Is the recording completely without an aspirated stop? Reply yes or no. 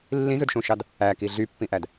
yes